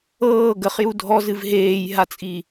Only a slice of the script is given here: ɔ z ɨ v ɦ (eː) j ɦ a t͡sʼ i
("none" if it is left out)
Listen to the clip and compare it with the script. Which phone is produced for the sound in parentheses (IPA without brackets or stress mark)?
eː